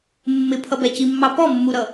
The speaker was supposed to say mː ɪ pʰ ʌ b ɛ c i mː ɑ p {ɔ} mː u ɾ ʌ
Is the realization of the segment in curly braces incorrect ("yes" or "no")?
no